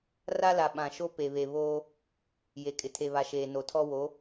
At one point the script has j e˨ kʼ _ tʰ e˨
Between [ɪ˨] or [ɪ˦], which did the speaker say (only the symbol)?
ɪ˨